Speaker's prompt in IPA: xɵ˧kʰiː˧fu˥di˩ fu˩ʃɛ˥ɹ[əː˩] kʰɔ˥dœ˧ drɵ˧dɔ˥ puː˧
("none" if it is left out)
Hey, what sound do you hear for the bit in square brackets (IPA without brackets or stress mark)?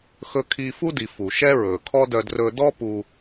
ɵː˩